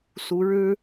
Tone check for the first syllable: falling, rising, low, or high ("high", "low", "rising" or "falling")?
rising